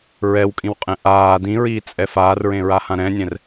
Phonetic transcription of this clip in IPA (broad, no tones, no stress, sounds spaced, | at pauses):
ɹ ɛ w kʼ ĩ w qʼ ɛ̃ ʔ aː d ĩ ɹ iː t͡sʼ ɛ f aː r ɹ ẽ ɹ a h ã ɾ ɛ̃ nʲ ɛ̃ r